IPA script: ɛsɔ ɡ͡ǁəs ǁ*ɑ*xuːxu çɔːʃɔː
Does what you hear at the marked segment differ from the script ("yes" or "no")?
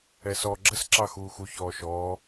no